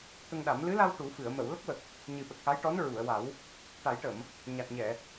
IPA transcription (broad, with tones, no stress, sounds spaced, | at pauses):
t̪ ə˧ ŋ ɗ a˨˩˦ m l ɨ˧˥ l a˧ w ʈ u˨˩˦ f ɨ˨˩˨ ə̯ m ə˨˩˨ w l ə˦˥ k̚ w ə˨˩ k̚ | ɲ ɨ˨˩ ɓ ə˨˩ k̚ x a˧˥ j ʈ ɔ˧˥ n ɹ u˨˩˨ ə̯ w a˨˩˦ w | ʈ a˨˩˦ j ʈ ə˨˩˨ m | ɲ a˨˩ t̚ ɲ ɛ˨˩˨